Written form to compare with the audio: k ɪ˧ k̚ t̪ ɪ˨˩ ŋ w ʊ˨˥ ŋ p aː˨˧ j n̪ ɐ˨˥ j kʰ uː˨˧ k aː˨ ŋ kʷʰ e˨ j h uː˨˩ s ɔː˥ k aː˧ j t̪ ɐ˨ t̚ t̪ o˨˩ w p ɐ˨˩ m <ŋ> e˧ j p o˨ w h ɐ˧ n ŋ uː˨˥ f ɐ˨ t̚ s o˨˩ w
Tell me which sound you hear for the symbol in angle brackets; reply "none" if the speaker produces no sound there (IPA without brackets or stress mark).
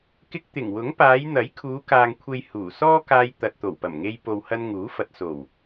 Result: ŋ